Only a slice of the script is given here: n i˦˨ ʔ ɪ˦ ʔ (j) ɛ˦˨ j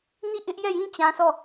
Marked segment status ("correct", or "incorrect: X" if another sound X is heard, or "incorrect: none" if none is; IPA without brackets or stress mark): correct